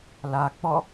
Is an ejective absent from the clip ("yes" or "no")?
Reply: yes